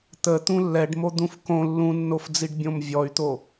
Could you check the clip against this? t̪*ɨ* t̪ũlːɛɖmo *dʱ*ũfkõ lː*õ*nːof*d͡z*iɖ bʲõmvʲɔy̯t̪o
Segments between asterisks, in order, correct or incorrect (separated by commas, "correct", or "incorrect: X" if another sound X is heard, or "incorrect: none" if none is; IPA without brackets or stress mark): incorrect: ə, incorrect: d̪, incorrect: ũ, correct